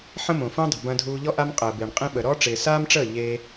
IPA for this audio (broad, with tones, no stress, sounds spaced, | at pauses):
ħ ə̃˦ m õ˨ f õ˦ dˤ ə̤˨ b ɐ̃˧ dʱ uː˧ ʎ ɔ˦ ʔ a˦ m qʼ əː˨ b ɪː˨ ɳ qʼ ĩ˦ ɓ ə˨ ɾ ɔː˦ ʈ͡ʂ ɪː˨ s aː˦ m ʈ͡ʂ əː˦˨ ʎ e˧